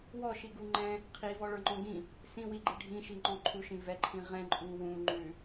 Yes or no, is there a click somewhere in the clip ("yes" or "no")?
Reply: yes